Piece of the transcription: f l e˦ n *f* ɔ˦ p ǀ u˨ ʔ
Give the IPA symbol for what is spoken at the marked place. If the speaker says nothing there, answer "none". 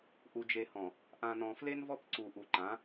v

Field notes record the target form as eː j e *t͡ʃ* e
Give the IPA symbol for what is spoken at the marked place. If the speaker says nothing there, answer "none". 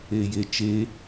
t͡ʃ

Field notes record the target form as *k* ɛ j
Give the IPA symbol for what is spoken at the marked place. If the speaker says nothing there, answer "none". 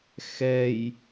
x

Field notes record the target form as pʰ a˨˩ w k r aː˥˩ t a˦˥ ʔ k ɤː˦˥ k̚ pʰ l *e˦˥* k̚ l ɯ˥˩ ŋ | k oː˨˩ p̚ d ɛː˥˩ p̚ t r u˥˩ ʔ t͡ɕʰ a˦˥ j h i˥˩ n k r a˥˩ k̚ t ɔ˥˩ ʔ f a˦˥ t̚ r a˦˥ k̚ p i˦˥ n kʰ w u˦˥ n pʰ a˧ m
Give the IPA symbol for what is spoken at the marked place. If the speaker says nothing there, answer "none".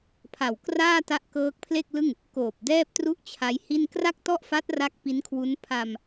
e˥˩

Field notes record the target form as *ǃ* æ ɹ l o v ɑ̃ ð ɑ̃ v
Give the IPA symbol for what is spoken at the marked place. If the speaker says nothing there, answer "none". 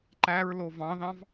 ǃ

